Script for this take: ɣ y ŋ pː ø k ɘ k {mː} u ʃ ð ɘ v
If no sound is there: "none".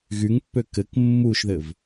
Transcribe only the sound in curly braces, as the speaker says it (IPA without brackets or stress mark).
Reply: mː